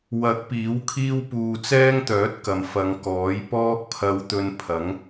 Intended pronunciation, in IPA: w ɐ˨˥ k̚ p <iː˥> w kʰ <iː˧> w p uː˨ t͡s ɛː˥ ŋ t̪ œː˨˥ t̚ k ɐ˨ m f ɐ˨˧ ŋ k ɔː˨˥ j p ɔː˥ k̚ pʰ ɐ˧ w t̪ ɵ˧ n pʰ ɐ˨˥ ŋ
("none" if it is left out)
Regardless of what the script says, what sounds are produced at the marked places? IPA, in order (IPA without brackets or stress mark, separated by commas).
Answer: iː˨˥, iː˥